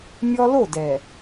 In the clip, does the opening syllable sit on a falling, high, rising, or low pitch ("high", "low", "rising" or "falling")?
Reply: high